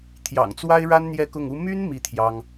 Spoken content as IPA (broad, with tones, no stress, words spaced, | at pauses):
t̪ʰjɑ̰˨˩ŋt͡swa˥ɪ̯ɻa˥n n̪jɛ˥˧kʊ˥˩ŋu˥ my˥n mi˥˩t̪ʰjɑ˥ŋ